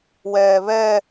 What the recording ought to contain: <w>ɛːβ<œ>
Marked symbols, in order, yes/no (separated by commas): yes, no